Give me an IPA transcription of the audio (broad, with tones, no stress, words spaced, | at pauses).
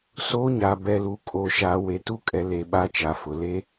soː˦ɲa˨ bɛ˨lu˨ kʼoː˨ʃaː˨we˨ tu˦kʼɛ˨le˨ ɓa˦t͡ʃa˨fʊ˨ le˦